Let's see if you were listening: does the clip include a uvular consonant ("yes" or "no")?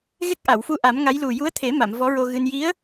no